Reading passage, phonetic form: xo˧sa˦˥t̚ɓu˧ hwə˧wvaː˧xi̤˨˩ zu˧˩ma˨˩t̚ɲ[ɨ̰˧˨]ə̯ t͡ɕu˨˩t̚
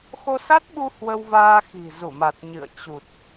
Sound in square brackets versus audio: correct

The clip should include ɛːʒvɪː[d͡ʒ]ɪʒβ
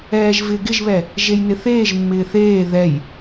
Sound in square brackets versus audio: incorrect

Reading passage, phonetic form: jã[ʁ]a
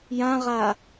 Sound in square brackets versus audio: correct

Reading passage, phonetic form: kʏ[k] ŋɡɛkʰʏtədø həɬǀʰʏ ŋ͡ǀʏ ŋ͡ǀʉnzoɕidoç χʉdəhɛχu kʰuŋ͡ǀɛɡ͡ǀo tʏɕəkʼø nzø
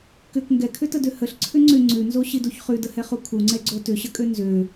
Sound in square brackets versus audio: correct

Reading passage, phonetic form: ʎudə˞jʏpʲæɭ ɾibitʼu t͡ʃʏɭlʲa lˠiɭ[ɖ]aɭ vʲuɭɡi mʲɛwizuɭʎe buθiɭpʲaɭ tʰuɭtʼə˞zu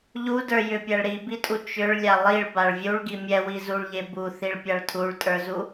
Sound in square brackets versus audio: incorrect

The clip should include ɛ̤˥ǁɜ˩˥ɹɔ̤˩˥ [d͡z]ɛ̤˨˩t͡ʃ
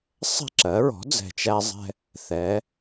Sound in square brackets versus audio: correct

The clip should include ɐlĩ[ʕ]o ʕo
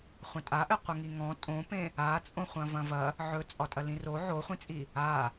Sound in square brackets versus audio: incorrect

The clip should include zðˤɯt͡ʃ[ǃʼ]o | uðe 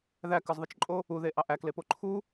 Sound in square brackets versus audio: correct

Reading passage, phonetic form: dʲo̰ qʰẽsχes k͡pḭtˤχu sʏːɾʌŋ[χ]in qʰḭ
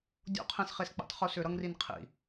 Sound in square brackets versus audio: incorrect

